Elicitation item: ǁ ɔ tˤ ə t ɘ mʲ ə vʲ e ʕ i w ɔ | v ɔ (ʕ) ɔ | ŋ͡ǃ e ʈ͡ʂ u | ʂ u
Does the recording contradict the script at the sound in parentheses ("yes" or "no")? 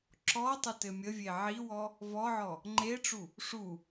no